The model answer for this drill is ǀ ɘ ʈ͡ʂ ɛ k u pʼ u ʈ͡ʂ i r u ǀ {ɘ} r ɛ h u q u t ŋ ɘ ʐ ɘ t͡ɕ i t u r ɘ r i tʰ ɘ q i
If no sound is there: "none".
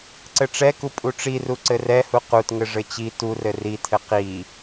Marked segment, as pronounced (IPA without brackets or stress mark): ɘ